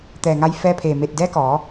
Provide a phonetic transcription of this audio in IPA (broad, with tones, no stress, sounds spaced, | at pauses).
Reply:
t̪ ɛː˧˩ ŋ a˧ j f ɛː˧ pʰ eː˧˩ m eː˧˩ t̚ d ɛː˧˥ k ɔː˩˧